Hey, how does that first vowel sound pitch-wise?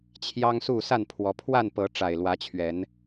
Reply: high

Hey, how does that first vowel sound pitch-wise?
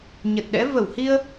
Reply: low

